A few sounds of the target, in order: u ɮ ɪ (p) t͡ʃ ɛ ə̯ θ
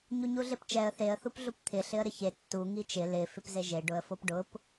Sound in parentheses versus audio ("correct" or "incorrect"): correct